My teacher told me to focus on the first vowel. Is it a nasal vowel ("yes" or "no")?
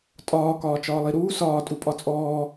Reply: no